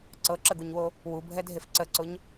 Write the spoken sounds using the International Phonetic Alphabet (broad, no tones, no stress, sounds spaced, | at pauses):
ǀ ɤ ǁ ə ɡ u ɲ w o | w u bʱ ɛ dʱ e f ǀ ə ǀ ʊ ɲ